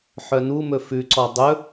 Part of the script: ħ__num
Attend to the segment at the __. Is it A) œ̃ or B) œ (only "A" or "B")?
B